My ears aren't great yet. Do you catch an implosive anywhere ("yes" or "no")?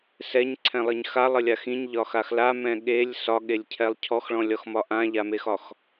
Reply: yes